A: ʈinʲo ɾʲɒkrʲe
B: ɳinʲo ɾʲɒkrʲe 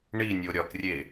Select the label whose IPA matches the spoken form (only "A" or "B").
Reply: B